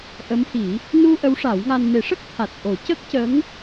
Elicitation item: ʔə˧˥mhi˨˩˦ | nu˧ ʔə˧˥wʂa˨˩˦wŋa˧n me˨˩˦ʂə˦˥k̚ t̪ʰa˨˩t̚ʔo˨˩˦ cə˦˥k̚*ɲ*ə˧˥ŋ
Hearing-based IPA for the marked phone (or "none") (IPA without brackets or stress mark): c